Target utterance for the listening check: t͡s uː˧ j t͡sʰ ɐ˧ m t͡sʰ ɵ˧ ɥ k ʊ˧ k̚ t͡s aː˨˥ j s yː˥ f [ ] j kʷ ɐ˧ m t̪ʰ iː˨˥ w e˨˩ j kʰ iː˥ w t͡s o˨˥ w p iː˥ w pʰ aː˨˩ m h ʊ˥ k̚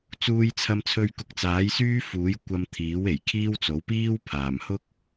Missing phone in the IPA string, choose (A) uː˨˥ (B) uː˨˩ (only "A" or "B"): A